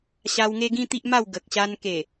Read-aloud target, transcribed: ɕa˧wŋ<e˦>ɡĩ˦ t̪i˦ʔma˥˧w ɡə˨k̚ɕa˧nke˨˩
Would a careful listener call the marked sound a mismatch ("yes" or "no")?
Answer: no